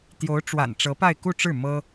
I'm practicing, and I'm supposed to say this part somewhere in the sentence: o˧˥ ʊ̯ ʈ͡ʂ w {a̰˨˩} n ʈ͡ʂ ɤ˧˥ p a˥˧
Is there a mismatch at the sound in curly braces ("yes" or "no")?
no